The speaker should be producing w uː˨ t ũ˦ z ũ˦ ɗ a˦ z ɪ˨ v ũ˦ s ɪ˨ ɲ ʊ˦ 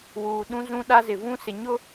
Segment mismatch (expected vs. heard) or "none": t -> ɗ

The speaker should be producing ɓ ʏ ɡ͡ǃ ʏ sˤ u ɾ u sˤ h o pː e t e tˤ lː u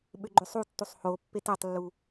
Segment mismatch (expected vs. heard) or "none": ɾ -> tː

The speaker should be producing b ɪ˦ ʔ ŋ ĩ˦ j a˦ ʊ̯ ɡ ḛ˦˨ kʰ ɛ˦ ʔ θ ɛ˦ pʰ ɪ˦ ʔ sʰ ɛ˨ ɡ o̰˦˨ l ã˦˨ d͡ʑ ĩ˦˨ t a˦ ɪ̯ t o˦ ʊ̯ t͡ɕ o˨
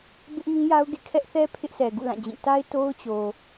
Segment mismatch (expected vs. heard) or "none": o̰˦˨ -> ṵ˦˨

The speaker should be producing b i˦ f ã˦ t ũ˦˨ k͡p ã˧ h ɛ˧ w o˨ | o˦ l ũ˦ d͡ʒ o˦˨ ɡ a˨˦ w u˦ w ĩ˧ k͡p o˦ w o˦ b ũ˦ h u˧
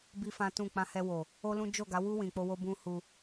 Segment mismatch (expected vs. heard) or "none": none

